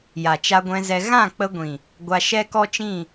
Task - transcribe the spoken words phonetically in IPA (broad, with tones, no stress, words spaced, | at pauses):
ja˨t͡ʃa˧ɡʷɛ̃˧zɛ˧ ɣã˦˨k͡pə˧ɡʷĩ˨ | ɡʷa˧ʃɛ˦kɔ˦t͡ʃĩ˦˨